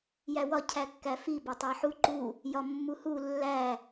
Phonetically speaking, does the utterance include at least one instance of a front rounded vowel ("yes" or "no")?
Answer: no